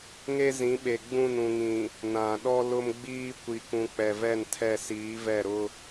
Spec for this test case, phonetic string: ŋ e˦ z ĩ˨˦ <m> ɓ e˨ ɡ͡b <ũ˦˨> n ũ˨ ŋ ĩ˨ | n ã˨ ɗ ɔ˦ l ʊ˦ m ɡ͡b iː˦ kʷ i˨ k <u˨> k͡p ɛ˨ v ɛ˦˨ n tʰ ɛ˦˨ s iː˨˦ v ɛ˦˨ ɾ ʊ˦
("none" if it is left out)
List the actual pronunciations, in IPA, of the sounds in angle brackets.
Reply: none, ũ˦˨, ũ˨

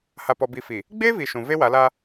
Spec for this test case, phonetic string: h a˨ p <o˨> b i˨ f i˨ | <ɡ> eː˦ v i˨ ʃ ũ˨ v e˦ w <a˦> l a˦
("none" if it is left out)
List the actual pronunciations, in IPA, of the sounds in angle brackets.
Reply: ɔ˨, ɡ͡b, a˨˦

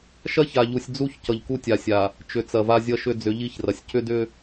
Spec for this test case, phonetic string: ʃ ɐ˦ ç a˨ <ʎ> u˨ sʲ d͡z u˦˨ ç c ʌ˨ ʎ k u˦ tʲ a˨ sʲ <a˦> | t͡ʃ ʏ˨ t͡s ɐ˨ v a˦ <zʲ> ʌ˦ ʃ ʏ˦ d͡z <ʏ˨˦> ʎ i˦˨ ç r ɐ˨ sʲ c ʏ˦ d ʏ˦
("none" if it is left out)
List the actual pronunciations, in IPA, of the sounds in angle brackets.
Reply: ʎ, a˨, zʲ, ʏ˨˦

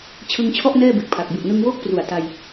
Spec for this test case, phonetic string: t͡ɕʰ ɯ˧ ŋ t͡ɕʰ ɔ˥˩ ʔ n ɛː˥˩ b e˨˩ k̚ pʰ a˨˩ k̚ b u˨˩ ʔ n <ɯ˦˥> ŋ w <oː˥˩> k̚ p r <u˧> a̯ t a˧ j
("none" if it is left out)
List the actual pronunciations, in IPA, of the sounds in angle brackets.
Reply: ɯ˧, oː˥˩, u˨˩

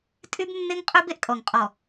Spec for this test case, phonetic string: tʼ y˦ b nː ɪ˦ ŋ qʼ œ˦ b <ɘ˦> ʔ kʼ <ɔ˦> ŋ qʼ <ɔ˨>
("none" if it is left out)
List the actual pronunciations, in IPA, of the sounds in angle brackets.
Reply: e˦, ɔ˨, ɔ˨

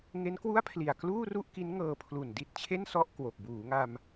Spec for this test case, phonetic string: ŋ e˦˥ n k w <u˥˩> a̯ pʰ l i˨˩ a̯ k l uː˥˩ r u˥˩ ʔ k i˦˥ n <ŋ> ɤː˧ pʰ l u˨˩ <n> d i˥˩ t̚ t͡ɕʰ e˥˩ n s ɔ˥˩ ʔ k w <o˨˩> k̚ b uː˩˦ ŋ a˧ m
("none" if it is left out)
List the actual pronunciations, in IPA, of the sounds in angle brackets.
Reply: u˥˩, ŋ, n, o˨˩

